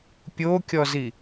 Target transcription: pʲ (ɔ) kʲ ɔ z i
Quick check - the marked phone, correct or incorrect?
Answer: incorrect